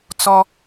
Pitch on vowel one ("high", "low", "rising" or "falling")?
high